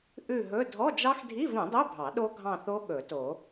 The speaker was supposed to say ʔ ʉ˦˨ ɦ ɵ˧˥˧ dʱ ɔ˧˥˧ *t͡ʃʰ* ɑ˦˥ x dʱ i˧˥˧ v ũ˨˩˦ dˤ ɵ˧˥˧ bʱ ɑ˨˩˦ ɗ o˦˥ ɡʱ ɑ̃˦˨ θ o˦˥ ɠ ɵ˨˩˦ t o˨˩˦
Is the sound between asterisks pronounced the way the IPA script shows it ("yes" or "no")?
no